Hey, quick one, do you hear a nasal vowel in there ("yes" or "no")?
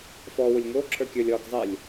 no